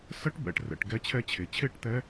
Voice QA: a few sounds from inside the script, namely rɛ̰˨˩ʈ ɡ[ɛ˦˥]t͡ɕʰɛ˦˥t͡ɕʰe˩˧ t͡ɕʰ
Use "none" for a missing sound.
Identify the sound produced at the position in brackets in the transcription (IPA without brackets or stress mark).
ɛ˦˥